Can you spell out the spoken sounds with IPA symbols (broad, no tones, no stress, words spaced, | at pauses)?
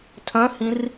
tʰœ̃hĩr